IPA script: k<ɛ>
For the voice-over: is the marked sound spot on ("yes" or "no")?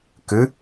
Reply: no